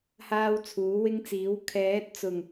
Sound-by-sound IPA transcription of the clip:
h aː˥ w t͡sʰ uː˨˥ w ɪ˥ ŋ t͡s iː˨˥ w kʰ ɛː˨˥ t̚ t͡s ʊ˨˩ ŋ

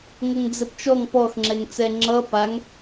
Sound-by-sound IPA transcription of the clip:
ŋ ʌ ŋ d͡z ɘ p t͡ʃ ɔ ŋ p ɔ x ŋ͡ǁ ɛ ŋ t͡s ɛ ŋ͡ǁ ʌ p a ŋ

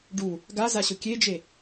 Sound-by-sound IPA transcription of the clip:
ɖ u | ɡ a z a ɕ ʊ kʲ e d͡ʒ e

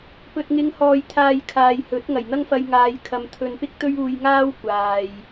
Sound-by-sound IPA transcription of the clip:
p ɵ˨ t̚ ŋ ɪ˨˧ ŋ h ɔː˨ j t̪ʰ aː˨ j kʰ aː˨ j h ɵ˨˥ t̚ ŋ ɐ˨˩ j n̪ ɐ˥ ŋ f ɐ˧ j ŋ aː˨˧ j kʰ ɐ˨ m t̪ʰ ɵ˧ n p ɪ˥ k̚ t̪ ɵ˥ ɥ uː˧ j ŋ aː˥ w kʷ aː˨ j

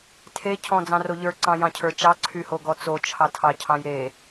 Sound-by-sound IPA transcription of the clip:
tʰ e cʰ ɔ̃ d͡z ɑ̃ r o ʎ ə˞ ǀ ɑ̃ j ɑ̃ cʰ ə˞ t͡ʃ ɑ ǀʰ y h o ɡ ɔ t͡s o t͡ʃʰ ɑ tʰ ɑ cʰ ɑ̃ j ɾ e

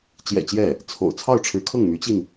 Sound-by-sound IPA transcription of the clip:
t͡ɕ j ɛ̰˨˩ t͡ɕ j ɛ˥˩ | t͡sʰ o̰˨˩ ʊ̯ t͡sʰ ɑ˥˩ ʊ̯ ʈ͡ʂʰ ɻ̩˧˥ kʰ ɤ˥˩ ŋ m y˧˥ t͡ɕ i˧ n

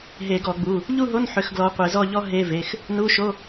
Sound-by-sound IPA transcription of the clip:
ɦ e˧˩˧ ɡ ɔ˧˩˧ ɡ͡b u˩˧˩ | ʎ u˥˧ ɦ o˧˥˧ n ħ ʏ˨˦ x ɡ l ɔ˨˦ qʷ e˧˩˧ z ɔ˥˧ ʎ ɔ˥ ɦ e˧˥˧ v e˩˧˩ x | n u˧˥˧ ʃ o˧˥˧

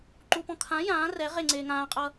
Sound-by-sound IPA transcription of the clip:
ǃ u p ɔ̃ kʰ ã j ãː r ɛ ʁ e ŋ͡ǀ eː ŋ ãː qʼ ʌː

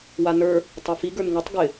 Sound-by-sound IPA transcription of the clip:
w a n ə˞ | tˤ a f i ɡ ə˞ n ŋ ɨ tˤ ɡ ɪ

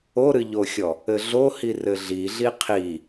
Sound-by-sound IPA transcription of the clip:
o ɾ ɨ ʎ o xʲ ɔ | ɘ ɮ o h i r ɘ ɮ i ɮ i qʰ i

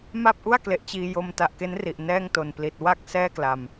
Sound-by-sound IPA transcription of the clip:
m a˥˩ p̚ ʔ u˥˩ a̯ k l e˨˩ ʔ t͡ɕ iː˧ j o˧ m t a˨˩ ʔ k e˦˥ n r i˨˩ ʔ n ɛː˥˩ ŋ t o˨˩ n p l i˨˩ t̚ w a˦˥ k̚ s ɛː˥˩ k l a˨˩ m

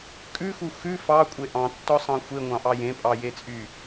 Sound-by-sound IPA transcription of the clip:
kʼ ʉ x u x ʉ f ɑ kʷʼ e ʔ ɑ̃ tː ɔ sˤ ɑ̃ xʷ e ŋʷ ɑ̃ ʔ ɑ j ẽ pʼ ɑ j e t͡sʼ y

